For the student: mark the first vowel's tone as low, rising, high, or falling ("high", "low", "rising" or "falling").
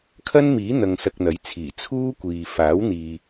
high